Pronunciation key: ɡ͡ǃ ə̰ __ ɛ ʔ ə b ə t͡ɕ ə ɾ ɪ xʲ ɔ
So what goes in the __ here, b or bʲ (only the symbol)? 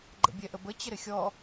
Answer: bʲ